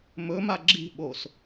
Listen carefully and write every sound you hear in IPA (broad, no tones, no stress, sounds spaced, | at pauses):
m ɵ m a ɡ͡ǁ i̤ ɓ o s